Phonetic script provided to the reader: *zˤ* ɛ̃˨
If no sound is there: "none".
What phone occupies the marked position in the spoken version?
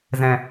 z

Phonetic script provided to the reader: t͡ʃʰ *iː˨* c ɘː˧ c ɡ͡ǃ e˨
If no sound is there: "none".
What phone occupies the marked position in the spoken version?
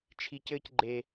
i˨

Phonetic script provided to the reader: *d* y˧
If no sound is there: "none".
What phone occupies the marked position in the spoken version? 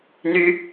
n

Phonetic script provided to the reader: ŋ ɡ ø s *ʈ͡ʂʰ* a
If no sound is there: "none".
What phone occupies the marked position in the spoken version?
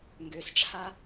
ʈ͡ʂʰ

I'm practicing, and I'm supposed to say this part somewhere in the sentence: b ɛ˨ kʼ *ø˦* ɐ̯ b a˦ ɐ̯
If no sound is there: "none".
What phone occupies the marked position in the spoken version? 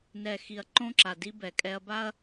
ɛ˦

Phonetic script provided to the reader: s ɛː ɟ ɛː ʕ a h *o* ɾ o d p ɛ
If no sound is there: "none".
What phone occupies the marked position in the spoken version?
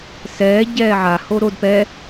o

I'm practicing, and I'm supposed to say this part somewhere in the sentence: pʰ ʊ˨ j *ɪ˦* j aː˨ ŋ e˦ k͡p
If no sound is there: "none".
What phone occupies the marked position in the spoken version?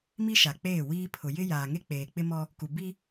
ɪ˦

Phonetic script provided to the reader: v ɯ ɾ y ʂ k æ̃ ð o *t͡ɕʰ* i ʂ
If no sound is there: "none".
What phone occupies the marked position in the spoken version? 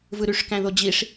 d͡ʑ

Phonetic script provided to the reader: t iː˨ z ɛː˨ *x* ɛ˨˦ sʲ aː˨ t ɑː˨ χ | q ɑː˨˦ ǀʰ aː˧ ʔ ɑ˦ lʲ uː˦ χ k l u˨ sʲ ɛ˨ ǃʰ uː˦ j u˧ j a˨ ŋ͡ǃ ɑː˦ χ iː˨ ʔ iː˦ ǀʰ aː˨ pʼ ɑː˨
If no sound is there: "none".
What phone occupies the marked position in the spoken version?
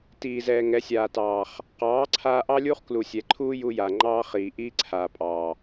ŋ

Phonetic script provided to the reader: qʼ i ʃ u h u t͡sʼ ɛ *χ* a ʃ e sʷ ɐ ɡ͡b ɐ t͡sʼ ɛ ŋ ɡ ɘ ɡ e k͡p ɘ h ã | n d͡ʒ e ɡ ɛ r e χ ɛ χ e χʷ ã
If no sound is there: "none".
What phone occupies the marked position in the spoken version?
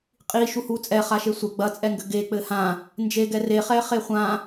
χ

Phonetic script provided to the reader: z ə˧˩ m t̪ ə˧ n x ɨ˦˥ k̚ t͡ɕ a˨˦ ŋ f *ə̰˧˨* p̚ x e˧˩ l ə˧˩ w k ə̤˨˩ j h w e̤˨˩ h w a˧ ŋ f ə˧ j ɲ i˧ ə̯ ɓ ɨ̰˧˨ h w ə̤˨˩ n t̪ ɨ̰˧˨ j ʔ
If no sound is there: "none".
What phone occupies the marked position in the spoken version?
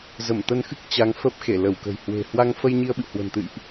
ə˦˥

